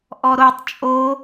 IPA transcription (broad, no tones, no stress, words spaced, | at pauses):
ʔɔɾotˤ t͡ʃʼo